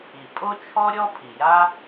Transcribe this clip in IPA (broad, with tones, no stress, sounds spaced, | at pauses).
i˩ pʼ o˥ t͡ʃʰ ɔ˥ ɾʲ ɔ˥ pʰ i˩ j a˥